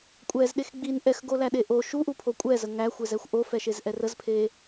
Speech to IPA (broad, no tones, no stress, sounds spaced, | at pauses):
kʷʼ ɛ z ɗ e x ɡ͡b i n ʔ ɛ x ɡ o l æ ɗ e ʔ o ʃ u ʔ u pʰ o kʷʼ ɛ z ə ŋ æ xʷ e z ɛ xʷ ʔ o f ɛ ʃ e z ʔ ɛ r ə z pʰ e